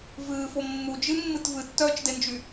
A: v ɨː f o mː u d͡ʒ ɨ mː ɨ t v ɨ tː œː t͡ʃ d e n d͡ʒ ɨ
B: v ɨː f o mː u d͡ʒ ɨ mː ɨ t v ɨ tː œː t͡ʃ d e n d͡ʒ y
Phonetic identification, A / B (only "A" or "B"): B